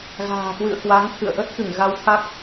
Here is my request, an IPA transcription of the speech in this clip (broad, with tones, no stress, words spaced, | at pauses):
ɣa̤ː˨˩kwɨ̰˧˨ə̯ kwa˨˦ŋt̪ʰɨ̰˧˨ə̯ ʔə˦˥t̚kɨ˧˩ŋ ɣa˧wt̪ʰa˦˥k̚